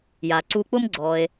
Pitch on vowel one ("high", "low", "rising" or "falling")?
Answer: low